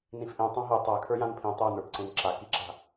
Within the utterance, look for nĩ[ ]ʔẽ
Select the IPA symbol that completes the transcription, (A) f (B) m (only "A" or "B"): A